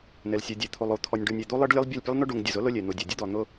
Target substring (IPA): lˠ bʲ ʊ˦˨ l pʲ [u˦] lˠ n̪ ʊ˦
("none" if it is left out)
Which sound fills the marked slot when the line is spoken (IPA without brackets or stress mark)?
u˦